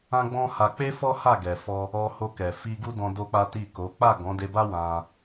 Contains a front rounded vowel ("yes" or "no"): no